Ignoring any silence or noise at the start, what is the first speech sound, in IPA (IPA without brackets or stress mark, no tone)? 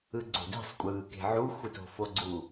ɯ